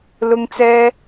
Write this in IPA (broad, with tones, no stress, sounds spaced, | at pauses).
l ʊ˥ ŋ t͡s ɛː˥